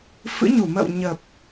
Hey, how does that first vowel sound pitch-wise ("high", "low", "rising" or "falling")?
rising